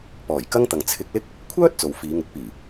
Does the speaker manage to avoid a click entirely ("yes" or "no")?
yes